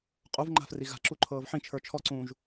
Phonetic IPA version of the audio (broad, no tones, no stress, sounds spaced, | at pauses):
qʼ u v ŋ͡ǃ a̤ f r i ɣ a̤ ǁ u ǃʰ ɤː v ħ ĩ t͡ʃʰ ə˞ t͡ʃʰ ɔ ǀ ũː ʒ